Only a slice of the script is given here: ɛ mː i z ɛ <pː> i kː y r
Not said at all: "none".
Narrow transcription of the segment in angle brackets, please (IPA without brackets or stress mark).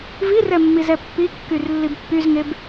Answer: pː